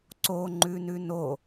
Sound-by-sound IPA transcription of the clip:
ǀ o ŋ͡ǃ ʉ n ʉ n o

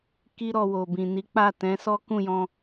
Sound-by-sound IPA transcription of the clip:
k i˦ ɾ ɔ˧ w o˨ b ĩ˨ n i˨˦ k͡p a˦˨ t ɛ̃˨˦ s ɔ˦ k ũ˦˨ j ɔ̃˧

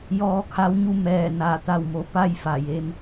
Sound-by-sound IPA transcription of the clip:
j ɔː˧ kʰ a˧˥ w ɲ u˥˨ m ɛː˧˩ n a˧˩ t̪ a˧˩ w m o˩ p a˥˨ j f a˧˩ j e˧ m

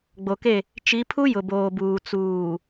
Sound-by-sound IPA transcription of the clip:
ɡ͡b o˨ k e˦˨ | t͡ʃ i˨˦ pʰ u˦ j ʊ˨ b oː˨ b uː˨ t͡s uː˨

